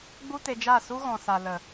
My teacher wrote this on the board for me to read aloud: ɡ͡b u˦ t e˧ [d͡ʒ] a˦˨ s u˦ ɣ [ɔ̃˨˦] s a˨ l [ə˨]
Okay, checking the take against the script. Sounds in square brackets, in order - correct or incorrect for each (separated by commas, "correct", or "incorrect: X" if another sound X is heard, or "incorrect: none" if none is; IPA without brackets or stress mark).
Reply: correct, incorrect: ɔ̃˨, correct